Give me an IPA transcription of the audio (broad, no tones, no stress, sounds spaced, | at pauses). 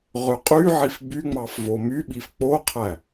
ʁ ø qʼ y ʕ i f b y ŋ͡m ɑ f v o m y ɓ i f k͡p o qʰ æ